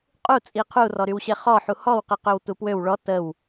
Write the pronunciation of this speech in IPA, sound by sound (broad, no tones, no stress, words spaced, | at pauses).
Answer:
qʼut͡sʼi qʰurɔɾywɕe χɔħu hɔwqi qøwtupwøw ɭɔ təw